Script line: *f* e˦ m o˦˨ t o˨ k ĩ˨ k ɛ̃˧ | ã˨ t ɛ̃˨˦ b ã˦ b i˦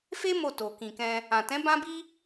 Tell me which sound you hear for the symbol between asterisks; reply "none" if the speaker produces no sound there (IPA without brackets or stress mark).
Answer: f